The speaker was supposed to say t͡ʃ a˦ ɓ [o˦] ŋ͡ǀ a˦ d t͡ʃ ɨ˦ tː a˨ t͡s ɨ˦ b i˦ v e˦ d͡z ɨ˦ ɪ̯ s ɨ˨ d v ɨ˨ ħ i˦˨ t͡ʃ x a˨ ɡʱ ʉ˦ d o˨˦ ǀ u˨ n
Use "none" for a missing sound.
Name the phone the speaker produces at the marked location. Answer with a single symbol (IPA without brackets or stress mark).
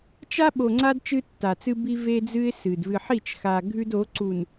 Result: o˨